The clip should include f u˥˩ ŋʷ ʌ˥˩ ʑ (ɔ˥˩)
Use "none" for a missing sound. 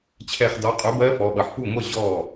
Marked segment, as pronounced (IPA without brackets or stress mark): ɔ˥˩